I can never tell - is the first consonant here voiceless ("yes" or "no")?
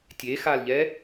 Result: yes